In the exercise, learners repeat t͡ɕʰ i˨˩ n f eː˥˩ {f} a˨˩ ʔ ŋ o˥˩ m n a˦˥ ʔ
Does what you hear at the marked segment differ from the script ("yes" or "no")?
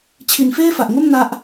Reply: no